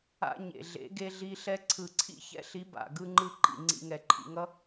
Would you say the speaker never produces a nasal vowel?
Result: yes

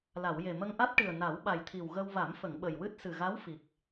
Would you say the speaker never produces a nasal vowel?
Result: yes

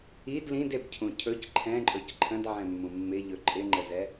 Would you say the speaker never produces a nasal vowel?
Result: no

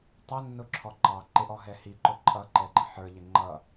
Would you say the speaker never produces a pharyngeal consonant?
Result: no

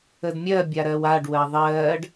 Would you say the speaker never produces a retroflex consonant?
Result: no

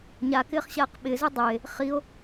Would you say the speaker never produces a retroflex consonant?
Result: yes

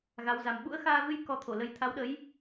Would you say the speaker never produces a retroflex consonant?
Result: yes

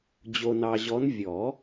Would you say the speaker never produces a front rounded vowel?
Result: yes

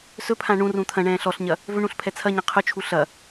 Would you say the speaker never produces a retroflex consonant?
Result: no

